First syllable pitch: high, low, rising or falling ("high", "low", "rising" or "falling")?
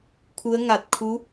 rising